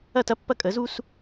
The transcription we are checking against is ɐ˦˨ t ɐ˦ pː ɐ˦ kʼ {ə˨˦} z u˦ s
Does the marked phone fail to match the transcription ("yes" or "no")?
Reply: no